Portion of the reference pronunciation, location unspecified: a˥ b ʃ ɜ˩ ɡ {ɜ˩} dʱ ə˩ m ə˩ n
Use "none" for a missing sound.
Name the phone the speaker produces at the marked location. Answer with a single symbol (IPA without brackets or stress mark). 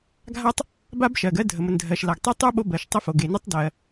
ɜ˥